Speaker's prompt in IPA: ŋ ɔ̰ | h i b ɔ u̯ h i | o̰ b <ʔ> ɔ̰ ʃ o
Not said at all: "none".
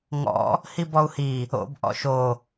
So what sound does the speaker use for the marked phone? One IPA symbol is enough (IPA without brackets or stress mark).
ʔ